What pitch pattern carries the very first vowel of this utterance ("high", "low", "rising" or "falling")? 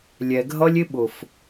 low